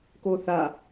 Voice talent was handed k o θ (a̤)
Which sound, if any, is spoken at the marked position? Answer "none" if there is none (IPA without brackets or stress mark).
a